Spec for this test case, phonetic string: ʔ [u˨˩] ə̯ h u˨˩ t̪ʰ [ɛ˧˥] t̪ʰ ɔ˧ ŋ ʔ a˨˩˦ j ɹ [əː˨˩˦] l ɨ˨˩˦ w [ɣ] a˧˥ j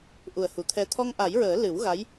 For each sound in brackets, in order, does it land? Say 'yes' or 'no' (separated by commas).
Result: yes, no, yes, yes